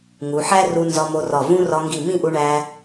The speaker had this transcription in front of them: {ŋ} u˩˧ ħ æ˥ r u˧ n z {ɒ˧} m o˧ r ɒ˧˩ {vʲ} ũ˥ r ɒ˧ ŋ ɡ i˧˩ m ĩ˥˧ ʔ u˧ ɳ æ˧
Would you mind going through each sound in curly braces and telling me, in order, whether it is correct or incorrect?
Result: correct, correct, incorrect: v

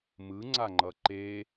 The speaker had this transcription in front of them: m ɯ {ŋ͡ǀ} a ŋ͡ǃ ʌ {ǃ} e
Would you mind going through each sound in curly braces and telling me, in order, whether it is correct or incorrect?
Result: correct, correct

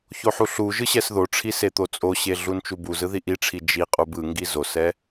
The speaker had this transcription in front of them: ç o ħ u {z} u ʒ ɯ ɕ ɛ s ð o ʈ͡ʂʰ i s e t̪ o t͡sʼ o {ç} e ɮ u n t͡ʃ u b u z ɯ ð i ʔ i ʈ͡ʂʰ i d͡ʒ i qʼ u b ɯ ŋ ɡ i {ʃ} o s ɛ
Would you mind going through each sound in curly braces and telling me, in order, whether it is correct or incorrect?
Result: incorrect: ɬ, incorrect: ɕ, incorrect: z

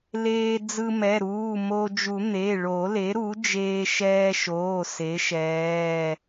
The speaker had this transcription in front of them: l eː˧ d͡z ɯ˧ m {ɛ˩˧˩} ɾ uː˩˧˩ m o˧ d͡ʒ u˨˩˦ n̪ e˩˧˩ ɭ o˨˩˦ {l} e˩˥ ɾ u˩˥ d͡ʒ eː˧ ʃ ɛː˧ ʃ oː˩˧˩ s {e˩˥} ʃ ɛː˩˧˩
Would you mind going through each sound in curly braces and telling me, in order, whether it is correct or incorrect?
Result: correct, correct, correct

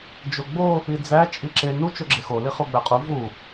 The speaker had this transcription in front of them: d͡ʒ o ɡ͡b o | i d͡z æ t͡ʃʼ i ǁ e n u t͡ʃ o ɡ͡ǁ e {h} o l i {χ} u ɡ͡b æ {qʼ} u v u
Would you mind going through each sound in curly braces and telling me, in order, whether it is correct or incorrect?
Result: incorrect: x, correct, correct

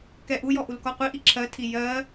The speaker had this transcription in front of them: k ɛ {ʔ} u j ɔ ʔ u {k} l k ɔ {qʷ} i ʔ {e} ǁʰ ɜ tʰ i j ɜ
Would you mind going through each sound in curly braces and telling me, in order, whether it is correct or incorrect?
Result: correct, incorrect: none, correct, incorrect: i

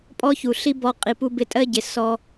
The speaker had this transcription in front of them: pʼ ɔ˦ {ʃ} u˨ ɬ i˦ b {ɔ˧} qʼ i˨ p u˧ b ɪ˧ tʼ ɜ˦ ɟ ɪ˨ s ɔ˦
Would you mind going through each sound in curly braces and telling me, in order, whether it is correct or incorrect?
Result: incorrect: ç, correct

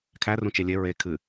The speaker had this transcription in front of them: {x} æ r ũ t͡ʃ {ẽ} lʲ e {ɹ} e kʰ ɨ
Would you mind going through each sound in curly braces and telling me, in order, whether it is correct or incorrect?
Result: incorrect: kʰ, incorrect: e, correct

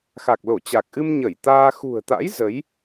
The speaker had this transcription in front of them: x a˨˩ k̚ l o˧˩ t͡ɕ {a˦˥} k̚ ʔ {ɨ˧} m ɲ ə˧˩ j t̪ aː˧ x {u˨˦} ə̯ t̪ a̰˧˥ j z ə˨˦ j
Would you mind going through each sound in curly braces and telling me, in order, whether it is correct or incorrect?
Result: incorrect: a˨˩, correct, incorrect: ṳ˨˩

